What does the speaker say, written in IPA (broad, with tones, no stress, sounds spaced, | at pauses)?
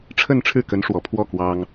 ʈ͡ʂʰ ə˥˧ n ʈ͡ʂʰ ɻ̩˥˩ k ə˧˥ n ʂ w ɔ˨˩ pʰ w ɔ˥˩ k w ɑ˥ ŋ